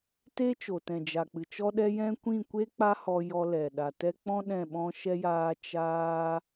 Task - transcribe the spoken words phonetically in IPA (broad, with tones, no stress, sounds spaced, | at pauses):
t e˦ t͡ʃ o˨ t ɛ̃˨ d͡ʒ a˨ k͡p ɨ˨ t͡ʃ ɔ˦ ɗ ɛ˦ j ɛ̃˦ kʷ ĩ˦˨ kʷ e˦ k͡p a˦ h ɔ˧ j ɔ˧ l ɛ˨ ɗ a˨ t ɛ˦ k͡p ɔ̃˦ ɗ ɛ̃˦˨ ɓ ɔ̃˦ ʃ ɛ˦ j aː˦ t͡ʃ aː˦